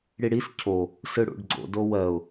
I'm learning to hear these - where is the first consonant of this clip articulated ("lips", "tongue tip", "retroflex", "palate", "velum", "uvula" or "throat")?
retroflex